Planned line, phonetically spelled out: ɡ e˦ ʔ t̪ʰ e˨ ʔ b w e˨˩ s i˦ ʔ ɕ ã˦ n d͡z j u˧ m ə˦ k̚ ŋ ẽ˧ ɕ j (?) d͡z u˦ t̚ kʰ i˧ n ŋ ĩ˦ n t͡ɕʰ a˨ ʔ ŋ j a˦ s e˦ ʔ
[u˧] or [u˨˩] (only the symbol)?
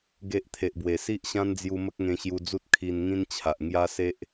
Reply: u˧